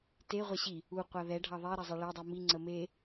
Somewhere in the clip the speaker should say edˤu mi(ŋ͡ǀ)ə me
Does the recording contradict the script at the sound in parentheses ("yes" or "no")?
no